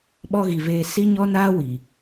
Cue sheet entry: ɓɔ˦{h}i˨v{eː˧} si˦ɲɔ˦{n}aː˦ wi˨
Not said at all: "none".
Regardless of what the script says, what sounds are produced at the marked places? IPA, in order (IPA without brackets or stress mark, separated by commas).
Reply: ɣ, eː˧, n